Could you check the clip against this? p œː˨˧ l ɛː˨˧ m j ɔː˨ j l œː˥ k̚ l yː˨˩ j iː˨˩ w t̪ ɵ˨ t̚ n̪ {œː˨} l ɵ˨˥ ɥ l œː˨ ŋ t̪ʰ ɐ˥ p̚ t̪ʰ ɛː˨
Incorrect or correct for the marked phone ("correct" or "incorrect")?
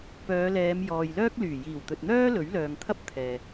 incorrect